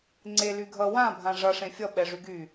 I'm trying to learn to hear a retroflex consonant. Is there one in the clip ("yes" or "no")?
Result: yes